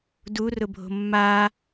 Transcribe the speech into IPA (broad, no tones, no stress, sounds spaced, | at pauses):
d u r ʊ bʱ o̤ mː a